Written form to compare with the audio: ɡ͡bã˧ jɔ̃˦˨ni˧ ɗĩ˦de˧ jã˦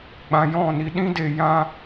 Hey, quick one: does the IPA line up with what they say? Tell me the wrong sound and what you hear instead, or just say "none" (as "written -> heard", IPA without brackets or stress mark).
none